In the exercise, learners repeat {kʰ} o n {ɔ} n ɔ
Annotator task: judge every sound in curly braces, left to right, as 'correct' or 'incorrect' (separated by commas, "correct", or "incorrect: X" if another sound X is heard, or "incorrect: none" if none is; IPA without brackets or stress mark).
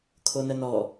correct, incorrect: ə